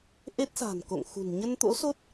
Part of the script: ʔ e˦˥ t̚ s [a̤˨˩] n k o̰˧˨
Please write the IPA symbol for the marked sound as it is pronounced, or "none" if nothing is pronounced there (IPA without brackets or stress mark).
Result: a̤˨˩